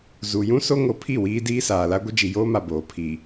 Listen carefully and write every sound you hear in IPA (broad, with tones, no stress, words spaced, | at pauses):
zu˨jũ˦ so˦ŋo˨˦ pʰi˦˨wiː˦ diː˦saː˨la˦ ɡʷɪ˦d͡ʒi˨joː˦ma˨ boː˨ pʰi˨